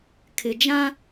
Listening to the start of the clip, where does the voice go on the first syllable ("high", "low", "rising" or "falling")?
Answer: low